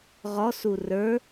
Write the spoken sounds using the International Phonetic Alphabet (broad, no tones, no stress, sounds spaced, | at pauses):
ʁ ɔ s u r ə˞